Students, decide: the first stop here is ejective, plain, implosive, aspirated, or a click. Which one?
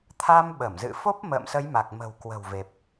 aspirated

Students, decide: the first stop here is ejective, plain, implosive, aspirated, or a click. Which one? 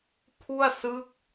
aspirated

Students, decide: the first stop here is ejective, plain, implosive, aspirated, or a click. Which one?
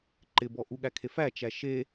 click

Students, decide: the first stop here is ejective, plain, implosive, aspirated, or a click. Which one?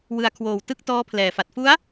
aspirated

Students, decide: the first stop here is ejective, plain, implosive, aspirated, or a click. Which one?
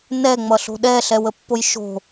implosive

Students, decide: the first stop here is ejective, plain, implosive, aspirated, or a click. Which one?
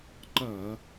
click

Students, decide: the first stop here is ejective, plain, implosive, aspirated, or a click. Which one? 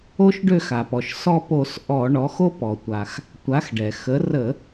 plain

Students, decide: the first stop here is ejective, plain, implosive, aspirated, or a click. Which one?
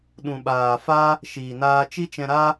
implosive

